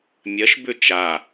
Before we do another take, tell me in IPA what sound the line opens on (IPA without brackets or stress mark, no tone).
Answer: mʲ